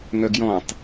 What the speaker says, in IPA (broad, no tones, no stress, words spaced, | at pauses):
ŋœɡjɔ̃tˤ